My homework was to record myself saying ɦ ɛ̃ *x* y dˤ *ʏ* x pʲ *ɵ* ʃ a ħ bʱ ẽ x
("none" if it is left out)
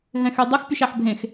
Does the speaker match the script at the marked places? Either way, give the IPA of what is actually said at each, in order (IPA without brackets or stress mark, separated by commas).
x, ə, ɵ